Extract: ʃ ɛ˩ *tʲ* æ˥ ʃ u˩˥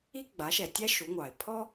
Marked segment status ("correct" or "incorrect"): correct